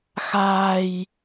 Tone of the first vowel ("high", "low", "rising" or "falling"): low